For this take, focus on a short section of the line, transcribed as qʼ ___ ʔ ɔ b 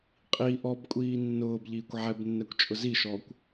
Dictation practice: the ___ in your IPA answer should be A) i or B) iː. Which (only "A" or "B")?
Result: A